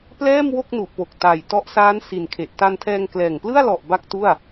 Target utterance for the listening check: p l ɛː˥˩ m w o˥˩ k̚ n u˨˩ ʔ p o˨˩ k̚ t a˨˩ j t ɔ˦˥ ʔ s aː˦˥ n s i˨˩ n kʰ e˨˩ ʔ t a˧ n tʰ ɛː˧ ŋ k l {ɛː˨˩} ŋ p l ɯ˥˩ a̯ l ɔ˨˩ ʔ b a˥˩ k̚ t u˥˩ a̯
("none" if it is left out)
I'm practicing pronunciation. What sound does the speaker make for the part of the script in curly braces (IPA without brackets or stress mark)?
ɛː˨˩